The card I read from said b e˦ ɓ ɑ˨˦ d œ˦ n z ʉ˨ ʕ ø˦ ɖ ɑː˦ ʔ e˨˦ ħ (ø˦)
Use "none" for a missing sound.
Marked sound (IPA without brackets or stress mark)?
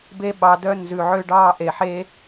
e˦